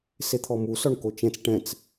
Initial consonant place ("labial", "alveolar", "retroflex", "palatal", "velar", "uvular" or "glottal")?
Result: alveolar